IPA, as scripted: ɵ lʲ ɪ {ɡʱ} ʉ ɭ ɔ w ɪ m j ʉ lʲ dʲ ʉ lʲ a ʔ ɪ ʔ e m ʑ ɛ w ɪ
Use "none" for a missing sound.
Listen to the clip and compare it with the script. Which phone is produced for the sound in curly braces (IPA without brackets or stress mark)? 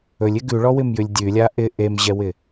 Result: ɡ